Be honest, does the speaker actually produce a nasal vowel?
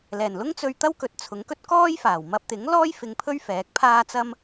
no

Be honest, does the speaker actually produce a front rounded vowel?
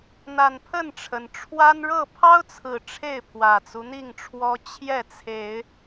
no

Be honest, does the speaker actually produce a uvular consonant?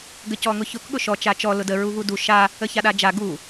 no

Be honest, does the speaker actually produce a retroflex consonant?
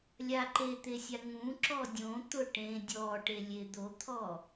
yes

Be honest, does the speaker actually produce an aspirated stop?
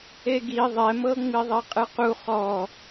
no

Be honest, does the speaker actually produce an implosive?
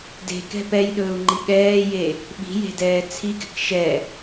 yes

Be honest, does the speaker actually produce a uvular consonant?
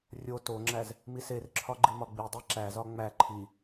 no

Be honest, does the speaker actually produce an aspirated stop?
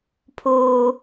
yes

